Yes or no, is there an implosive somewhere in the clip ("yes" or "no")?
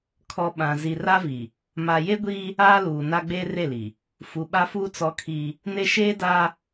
yes